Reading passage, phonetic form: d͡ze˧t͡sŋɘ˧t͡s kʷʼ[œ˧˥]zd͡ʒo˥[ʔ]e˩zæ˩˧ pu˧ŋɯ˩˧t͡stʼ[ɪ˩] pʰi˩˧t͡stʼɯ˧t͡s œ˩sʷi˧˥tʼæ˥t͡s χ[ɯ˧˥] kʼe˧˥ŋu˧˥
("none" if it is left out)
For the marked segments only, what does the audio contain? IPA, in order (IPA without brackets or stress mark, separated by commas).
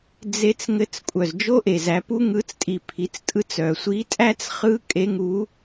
œ˩, ʔ, i˩, ɯ˧˥